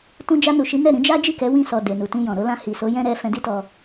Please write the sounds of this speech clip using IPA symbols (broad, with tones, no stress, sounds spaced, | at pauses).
t ũ˧ d͡ʒ a˧ n u˨ ʃ i˨˦ n ɛ˦˨ ɾ ĩ˨˦ d͡ʒ a˦ d͡ʒ i˦˨ k ɛ˨˦ w ĩ˦˨ s ɔ˨ d e˨ n u˨ t ĩ˧ j ɔ̃˨ ɾ o˧ l ã˧ h i˨ s o˨˦ j ɛ̃˦ ɾ ɛ˧ f ɛ̃˧ d i˦ t ɔ˧